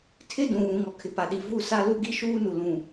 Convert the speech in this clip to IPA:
tʰ ɪ˦ d ũ˨ β ũ˨ ŋ ɔ˨ kʰ ɪ˨ p a˨ ɗ i˨ v u˦˨ s a˦ l u˦ ɡ i˦ ʃ uː˦ n u˨ l ũ˨

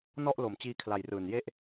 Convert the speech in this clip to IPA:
n ɔ˥˩ ʔ l o˨˩ m t͡ɕ iː˧ kʰ l a˨˩ j r ɯː˨˩ n j e˥˩ ʔ

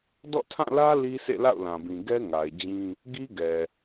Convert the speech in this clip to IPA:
d ɔ̰˦˨ tʰ ã˦˨ l ä˦ l i˦ sʰ ḛ˦˨ l a̰˦˨ ʊ̯ l ã˨ b ĩ˨ ɡ ɛ˦ ŋ a˨ ɪ̯ d͡ʑ ĩ˦ | ɡ i˦ ɡ ɛ˨

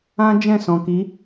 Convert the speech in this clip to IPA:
ã˦ d͡ʒ ɛ̃˦˨ s ɔ̃˨ k i˨˦

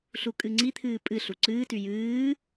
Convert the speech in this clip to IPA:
ɬ u kʼ ɨ ŋ͡ǀ i t̪ʰ ɨː pʼ ɨ ɬ u ǀ ɨː t y j ɨː

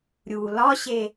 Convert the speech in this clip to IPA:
ɾʲ u l ɒ ɕ e

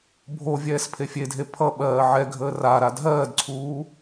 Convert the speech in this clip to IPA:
bʱ o vʲ ɛː s pʰ e fʲ e dʱ e pʰ ʌ ɓ ɜː ʕ ɛ ɡʱ əː r a ɾ a dʱ ɜː d ǀʰ uː

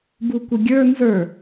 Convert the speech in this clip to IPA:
b u kʷ ə ɡʲ ə˞ n z ə˞

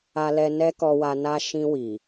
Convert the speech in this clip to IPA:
a˧ l ɛ˧ n ɛ˦ k ɔ˧ w a˧ n a˦ ʃ ĩ˧ w i˨

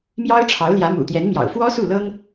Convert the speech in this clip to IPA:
m j ɑ˥ ʊ̯ ʈ͡ʂʰ ɑ˧˥ ʊ̯ l j ä˧˥ m ṵ˨˩ t̪ j ɛ˧˥ n m j ɑ̰˨˩ ʊ̯ f w ɔ˥ s u˥˩ l ɤ˥ ŋ

